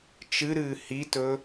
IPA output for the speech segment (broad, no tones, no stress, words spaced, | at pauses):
t͡ʃɨɾɨː hitɵ